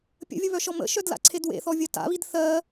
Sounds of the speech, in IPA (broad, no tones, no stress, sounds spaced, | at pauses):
pʲ ə̰ vʲ ə β œ ʃ ɔ m ə̰ ʃ œ d l a̰ ǀʰ e d w ḛ θ ɔ vʲ ɜ t a̰ β i d θ ɜ